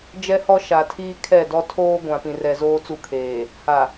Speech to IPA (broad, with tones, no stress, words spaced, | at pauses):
d͡ʒɛ˦hɔ˦ ʃa˨tʰiː˦kʰɛ˦˨dɔ˦ tʰoː˦ɡʷã˨pĩ˨rɛ˨ zoː˦t͡su˦˨kʰeː˨ | ha˨